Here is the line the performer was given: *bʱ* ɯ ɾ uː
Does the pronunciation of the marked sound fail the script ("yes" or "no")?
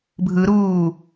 no